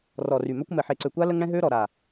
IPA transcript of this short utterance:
rɔ˨ry˨mœ˦kʷ mɛ˨ħe˨ǀø˨kʷa˦ lə˦ŋɽɛ̃˦ ɦø˦ɾɔ˨ ɾa˨

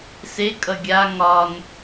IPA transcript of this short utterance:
sekʼʌ ɡʲa ŋɒn

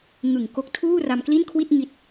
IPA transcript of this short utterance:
ŋɯ˨˩ŋko˦˥k̚ tʰuː˥˩ra˧mkli˥˩nkʰwi˥˩t̚ ŋi˥˩t̚

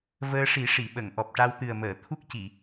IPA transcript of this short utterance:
vəː˧ʂi˨˩˦ʂi˨˩˨ɓə˨˩˨ŋ ʔɔ˨˩p̚ʈa˧wt̪ɨ˨˩ə̯məː˨˩˨ t̪ʰu˦˥k̚ci˨˩˨

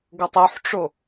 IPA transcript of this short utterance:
ɡɤtˤuħʈ͡ʂo

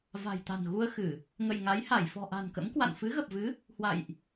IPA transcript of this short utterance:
va̤˨˩jt̪a̤˨˩nɣu˧ə̯xɨ˧˩˨ | ŋə̰˧˨jŋa˨˦jha˧˩j fɔ̤˨˩ʔa̤˨˩nkə̰˧˥mkwa̰˧˨n fɨ˨˦ɣə˨˩p̚vɨ˨˦ | hwa̰˧˨jʔ

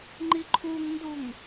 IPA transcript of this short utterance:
ŋ͡ǃiǃʰuŋnduŋ

